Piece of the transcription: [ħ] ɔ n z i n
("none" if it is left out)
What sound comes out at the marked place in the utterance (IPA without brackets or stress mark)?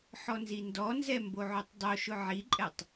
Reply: ħ